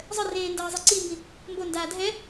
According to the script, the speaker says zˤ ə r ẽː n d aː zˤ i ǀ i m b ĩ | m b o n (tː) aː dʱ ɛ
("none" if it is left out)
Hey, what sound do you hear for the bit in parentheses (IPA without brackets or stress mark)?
d